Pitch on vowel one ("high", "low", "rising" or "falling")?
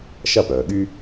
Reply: falling